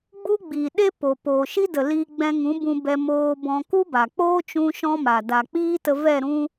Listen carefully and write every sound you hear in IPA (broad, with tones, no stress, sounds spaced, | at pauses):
ɡ͡b u˦ ɡ͡b iː˨ ɗ e˦ p o˨ p oː˨ ʃ i˦ d ə˨ l iː˧ ɡ͡b ɛ̃˧ ŋ ũ˨˦ b ũ˧ b ɛ˧ m oː˧ b ɔ̃˧ k u˦ b a˨ k͡p oː˦ t͡ʃ ũ˦ ʃ ɔ̃˦ m a˨ d a˨ k͡p iː˦ t ə˧ v ɛ˦˨ ɾ ũ˦